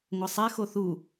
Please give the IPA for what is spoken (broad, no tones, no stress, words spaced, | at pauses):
ŋʷɐsˤɛ xoθu